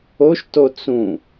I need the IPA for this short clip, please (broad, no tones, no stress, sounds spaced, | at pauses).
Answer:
o ʃ t o t͡s ũ